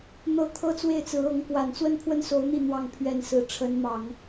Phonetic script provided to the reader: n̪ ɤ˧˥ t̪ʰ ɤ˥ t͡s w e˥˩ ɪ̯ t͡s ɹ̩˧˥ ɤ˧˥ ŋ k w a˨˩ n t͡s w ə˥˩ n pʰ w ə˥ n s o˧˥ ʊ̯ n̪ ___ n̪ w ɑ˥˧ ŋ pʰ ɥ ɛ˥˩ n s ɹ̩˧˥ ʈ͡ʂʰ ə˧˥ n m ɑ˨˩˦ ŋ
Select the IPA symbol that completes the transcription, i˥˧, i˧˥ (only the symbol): i˥˧